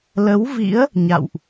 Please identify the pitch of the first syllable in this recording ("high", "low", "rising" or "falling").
rising